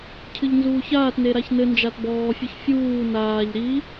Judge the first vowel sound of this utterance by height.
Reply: high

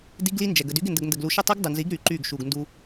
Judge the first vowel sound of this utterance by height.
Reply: high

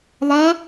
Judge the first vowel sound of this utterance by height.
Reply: low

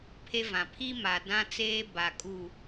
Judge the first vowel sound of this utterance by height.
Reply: mid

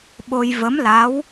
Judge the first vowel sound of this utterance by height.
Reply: mid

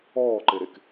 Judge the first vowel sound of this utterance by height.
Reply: mid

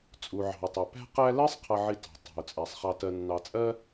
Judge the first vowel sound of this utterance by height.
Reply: high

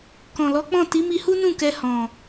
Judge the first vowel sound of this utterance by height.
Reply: mid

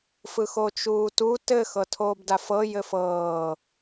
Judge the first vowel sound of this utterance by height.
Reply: high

